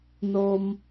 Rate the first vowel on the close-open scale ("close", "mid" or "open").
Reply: mid